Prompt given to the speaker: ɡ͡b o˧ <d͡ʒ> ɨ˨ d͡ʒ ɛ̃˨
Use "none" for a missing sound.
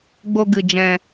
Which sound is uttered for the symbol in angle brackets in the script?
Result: ɡ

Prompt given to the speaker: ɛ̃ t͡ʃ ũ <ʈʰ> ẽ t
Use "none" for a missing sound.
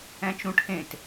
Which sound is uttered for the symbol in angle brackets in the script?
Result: ʈʰ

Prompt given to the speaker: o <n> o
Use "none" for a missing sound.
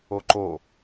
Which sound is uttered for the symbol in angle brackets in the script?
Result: ǃ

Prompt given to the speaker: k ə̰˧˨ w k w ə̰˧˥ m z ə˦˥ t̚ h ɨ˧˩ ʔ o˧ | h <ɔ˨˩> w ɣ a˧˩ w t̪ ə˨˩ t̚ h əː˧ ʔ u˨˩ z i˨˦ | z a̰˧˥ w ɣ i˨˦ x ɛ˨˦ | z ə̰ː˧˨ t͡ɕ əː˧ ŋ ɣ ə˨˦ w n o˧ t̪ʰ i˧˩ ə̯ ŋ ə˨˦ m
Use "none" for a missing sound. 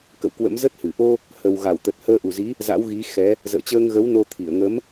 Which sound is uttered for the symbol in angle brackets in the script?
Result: ə˨˩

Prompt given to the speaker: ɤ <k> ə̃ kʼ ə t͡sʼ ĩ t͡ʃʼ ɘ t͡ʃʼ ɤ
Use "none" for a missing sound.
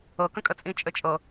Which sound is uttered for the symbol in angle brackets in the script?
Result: k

